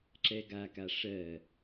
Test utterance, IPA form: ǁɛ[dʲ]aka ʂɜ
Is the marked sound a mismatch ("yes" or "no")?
yes